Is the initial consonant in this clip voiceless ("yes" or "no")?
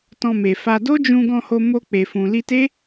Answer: yes